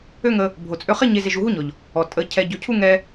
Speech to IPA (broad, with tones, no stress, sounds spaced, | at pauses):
ø˦ ŋ ə˧ | bʱ o˨ t͡sʼ ø˧ χ e˦ ɲ e˧ z e˧ ʒ u˧ ɦ u˦ ɲ ɔ˨ ʎ | ɔ˨ tʼ ə˨˦ cʰ ɛ˧ ɟ ø˧ cʰ u˦ ŋ ɛ˧